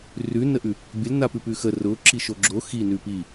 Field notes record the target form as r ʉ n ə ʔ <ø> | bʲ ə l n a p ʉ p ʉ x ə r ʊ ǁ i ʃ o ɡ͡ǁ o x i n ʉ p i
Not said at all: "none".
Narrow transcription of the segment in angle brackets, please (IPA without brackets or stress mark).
ʉ